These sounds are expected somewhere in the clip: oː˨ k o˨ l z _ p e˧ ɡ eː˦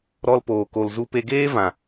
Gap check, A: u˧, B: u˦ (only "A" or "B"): A